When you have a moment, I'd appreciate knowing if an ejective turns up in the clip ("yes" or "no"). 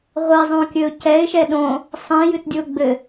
no